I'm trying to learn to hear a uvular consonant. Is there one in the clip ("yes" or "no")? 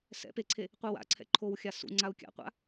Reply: yes